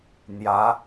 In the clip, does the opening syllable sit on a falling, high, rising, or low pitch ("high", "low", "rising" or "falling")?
rising